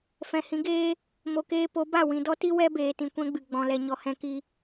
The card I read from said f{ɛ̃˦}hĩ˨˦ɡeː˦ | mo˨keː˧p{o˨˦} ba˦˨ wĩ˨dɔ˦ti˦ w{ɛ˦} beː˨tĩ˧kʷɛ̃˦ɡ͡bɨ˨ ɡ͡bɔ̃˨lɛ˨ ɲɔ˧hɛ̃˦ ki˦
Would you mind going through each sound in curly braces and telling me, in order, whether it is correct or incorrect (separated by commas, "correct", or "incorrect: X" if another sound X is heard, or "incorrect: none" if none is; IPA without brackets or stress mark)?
incorrect: ɛ̃˨, correct, correct